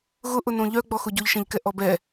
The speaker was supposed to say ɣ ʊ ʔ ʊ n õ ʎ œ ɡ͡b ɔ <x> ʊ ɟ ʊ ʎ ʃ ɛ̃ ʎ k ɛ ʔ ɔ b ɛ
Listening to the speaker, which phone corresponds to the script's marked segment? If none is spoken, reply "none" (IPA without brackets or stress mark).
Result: x